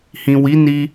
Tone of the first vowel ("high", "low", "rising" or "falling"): low